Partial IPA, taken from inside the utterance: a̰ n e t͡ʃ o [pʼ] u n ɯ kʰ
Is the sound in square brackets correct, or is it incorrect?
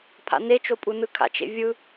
correct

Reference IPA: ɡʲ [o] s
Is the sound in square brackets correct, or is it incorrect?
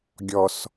incorrect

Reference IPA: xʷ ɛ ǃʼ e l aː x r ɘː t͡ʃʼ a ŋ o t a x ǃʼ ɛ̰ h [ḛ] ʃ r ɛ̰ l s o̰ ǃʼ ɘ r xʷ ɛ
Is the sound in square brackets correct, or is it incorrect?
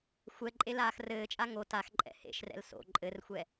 correct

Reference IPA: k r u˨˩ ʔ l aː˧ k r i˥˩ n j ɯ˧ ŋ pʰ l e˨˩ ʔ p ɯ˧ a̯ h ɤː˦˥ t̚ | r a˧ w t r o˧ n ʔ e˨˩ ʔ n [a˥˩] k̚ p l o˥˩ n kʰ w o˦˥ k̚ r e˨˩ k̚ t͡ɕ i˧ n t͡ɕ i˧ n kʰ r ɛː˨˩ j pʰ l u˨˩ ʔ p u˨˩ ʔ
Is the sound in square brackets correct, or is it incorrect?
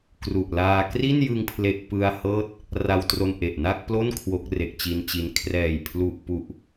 correct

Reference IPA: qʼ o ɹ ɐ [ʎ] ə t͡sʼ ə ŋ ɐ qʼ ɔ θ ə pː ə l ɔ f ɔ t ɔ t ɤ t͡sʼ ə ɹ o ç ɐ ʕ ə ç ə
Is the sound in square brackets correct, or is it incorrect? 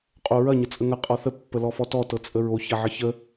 incorrect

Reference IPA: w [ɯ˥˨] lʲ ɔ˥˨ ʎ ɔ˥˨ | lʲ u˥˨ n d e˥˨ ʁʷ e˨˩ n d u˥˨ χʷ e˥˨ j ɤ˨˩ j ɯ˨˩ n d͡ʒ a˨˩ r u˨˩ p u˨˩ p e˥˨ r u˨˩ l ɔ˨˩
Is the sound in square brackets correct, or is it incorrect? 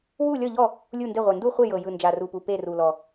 incorrect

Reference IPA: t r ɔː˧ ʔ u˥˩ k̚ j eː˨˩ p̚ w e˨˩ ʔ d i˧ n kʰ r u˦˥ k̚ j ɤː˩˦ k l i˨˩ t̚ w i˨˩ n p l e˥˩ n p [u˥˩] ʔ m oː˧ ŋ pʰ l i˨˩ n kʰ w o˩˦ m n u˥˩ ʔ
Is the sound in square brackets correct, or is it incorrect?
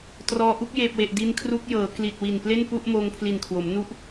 correct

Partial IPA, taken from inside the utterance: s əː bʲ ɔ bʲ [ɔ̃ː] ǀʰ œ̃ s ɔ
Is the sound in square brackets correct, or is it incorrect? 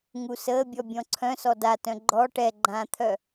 incorrect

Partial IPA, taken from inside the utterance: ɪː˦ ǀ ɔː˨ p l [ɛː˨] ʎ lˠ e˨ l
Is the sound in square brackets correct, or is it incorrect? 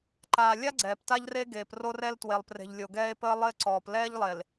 incorrect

